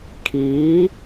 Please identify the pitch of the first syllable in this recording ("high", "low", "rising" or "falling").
rising